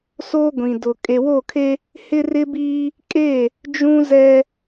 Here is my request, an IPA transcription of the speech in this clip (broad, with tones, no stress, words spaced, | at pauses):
soː˦ɡʷĩ˨ dʊ˨ kʼe˨wo˦˨kʰe˦ | hɪ˦ rɪ˦biː˦ | kʼe˦˨ | d͡ʒũ˦ zɛ˦